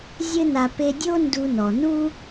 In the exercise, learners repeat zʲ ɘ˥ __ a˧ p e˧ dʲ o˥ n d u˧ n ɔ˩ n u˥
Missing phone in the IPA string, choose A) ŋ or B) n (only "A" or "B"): B